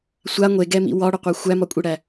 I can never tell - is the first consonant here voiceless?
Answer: yes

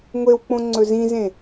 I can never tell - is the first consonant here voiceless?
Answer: no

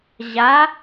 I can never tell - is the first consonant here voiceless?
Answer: no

